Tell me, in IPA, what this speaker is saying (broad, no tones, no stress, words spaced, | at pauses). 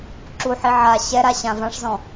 ǁuħi ʕa ɕɛɾaɕã vãʂzɔ̃